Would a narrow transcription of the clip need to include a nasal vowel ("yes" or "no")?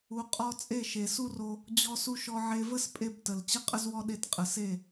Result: no